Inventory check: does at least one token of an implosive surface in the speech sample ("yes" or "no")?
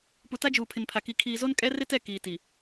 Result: no